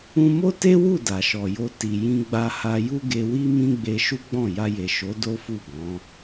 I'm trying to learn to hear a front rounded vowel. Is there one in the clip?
no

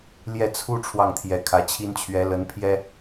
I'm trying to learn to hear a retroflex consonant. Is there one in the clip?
yes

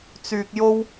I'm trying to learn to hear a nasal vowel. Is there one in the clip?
no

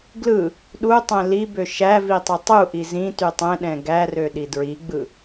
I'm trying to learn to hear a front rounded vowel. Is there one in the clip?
yes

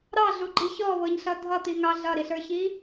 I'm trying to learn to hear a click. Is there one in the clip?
yes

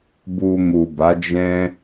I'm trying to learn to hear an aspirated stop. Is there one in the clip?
no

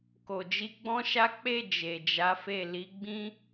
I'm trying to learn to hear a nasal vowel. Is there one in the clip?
yes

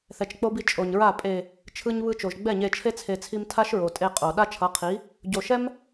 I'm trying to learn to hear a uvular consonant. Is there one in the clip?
yes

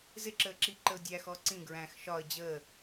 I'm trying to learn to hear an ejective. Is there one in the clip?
no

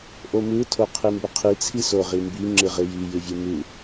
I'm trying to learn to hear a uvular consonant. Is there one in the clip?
yes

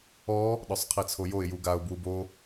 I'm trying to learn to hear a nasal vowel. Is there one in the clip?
no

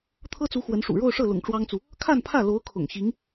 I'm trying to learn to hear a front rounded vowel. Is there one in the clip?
no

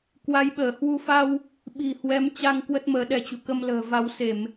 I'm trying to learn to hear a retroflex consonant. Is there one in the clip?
no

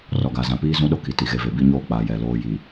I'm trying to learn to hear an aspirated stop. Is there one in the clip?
no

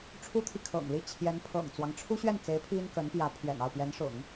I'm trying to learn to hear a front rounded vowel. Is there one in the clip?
no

